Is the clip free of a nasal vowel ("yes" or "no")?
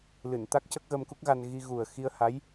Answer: yes